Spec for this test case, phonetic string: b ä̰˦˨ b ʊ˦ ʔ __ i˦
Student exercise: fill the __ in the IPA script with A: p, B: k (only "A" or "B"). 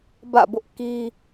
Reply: B